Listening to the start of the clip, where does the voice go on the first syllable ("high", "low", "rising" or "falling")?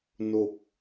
falling